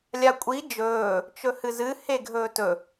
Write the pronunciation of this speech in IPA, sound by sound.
lʲ a kʷʼ i d͡ʒ ɵː | t͡ʃ ɵ h ɨ z ɨ h e ɡʱ ɵː t ɵ

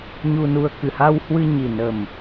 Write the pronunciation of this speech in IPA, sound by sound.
ɲ u˧ n u˧ ə̯ k ɨ˨˩ h a˧ w h w ɨ˧ ɲ i˨˩ n ə˨˩ m

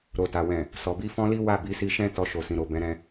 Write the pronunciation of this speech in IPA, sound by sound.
ɾ o˨ t a˨ w ɛ̃˨ | s ɔ˨ b i˧ f ɔ̃˦ l i˦ w a˦˨ b i˨˦ s i˧ ʃ ɛ̃˦ t ɔ˧ ʃ o˨ s ĩ˨ ɾ o˨ b ɛ̃˨˦ ɾ ɛ̃˧

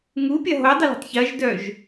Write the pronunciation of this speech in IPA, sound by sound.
ŋ u pʲ ɐ ɦ o dˤ ə l ṳ tˤ ç ɐ ʒ d œ ʒ

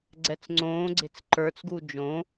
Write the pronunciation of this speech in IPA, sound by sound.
ɡ͡ǀ ɛ t͡s ŋ͡ǀ õː ɡ͡ǀ e̤ t͡s ǃ ə˞ t͡s ɡ u d͡ʒ õ

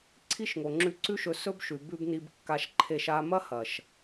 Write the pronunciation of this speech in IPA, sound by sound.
ǀʰ i˦ ʃ ŋ o˨ ŋ͡ǁ ʉ˧ ǀ ʉ˦ ʃ ɵ˧ s ɵ˦ b ʃ ʉ˨ b ʉ˧ b n i˧ b kː a˧ ʃ ǃʰ e˧ ʃ a˧ m ɐ˦ h ɐ˨ ʃ

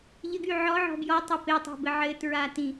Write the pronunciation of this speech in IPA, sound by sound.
ʎ ɘ ɡ y ʕ ɔ ʕ ɔ̤ b j ɔ tˤ ɤ p e tˤ o̤ b ɘ ʕ ɘ t ɹ a t ĩ

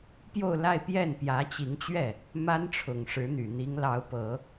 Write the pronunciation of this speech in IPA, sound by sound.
p j o˥˧ ʊ̯ l a˥˧ ɪ̯ p j ɛ˥˩ n p j ä˧˥ t͡ɕ i˧˥ ŋ t͡ɕ ɥ ɛ˥˩ | m a˥ n ʈ͡ʂʰ ʊ˨˩ ŋ ʂ ɻ̩˧˥ n̪ y˨˩ n̪ i˧˥ ŋ l ɑ˧˥ ʊ̯ p ɤ˨˩˦

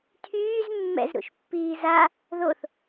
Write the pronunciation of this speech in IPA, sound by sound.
tʰ yː z mː ɛ̰ z ɾ ṵ ʃ pː iː z a | ð o θ

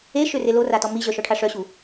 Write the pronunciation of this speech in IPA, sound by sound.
e ʃ ø r e l o r a t ɔ m i ʑ œ ʃ ɔ ʈʰ a ʂ œ ɕ u

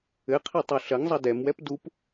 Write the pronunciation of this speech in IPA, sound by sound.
ɘ qʰ i tˤ o ɬ ɐ ŋ zˤ ɐ d ɛ m w ɛ p d u p

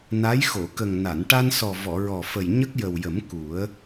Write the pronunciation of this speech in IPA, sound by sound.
n a˧˥ j x o˨˩˨ k ə˨˩ ŋ n a˨˩˨ n ʈ a˧ n s ɔ˨˩ v ɔ˨˩˨ ɹ ɔ˨˩ f ə˨˩ j ɲ ə˦˥ k̚ j ə˨˩ w j ə˨˩˦ m k u˨˩˦ ə̯

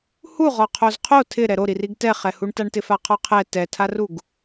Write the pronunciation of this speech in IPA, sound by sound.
h u ʁ ɔ qʰ o z qʰ o tʰ ɪ ɾ ɛ ɾ o ɾ i r i ɡ t ɛ χ ɛ h u ɳ t a ɳ t ɪ f a qʰ ɔ qʰ ɛ t ɛ tʰ a r u ɡ

